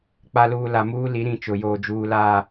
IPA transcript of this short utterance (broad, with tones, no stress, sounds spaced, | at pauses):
k͡p a˨ l uː˨ l a˨ m uː˦ l i˨˦ ɾ ĩ˦˨ t͡ʃ ʊ˨ j oː˨ d͡ʒ uː˨ l aː˦˨